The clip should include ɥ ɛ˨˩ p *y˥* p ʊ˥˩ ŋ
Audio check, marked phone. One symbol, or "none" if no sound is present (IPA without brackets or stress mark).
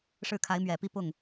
i˥